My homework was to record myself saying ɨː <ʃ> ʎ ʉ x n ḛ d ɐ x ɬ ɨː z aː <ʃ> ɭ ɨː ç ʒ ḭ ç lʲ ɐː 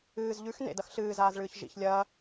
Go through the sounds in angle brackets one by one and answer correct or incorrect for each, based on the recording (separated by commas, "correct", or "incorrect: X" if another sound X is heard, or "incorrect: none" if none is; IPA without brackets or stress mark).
incorrect: z, incorrect: z